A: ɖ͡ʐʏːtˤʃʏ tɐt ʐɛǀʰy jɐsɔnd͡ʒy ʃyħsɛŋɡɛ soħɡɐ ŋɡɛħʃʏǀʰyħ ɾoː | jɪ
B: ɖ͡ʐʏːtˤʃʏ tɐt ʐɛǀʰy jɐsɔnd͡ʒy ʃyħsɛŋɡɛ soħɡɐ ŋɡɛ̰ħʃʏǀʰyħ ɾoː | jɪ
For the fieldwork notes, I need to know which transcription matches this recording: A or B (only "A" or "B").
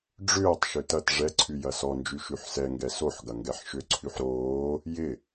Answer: A